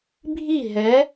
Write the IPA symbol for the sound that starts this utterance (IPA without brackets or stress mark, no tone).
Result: bʱ